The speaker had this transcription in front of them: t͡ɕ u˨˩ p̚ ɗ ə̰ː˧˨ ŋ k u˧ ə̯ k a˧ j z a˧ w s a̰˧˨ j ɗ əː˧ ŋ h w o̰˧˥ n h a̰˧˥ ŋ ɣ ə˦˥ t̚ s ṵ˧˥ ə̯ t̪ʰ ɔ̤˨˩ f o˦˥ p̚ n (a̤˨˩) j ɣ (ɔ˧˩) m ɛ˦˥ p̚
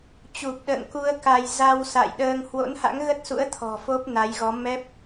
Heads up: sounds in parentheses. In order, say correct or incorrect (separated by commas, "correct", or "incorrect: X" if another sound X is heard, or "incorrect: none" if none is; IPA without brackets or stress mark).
incorrect: a˨˦, incorrect: ɔ˨˦